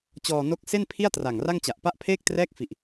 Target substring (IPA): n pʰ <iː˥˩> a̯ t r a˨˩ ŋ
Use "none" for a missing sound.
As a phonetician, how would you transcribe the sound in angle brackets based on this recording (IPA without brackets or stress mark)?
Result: i˥˩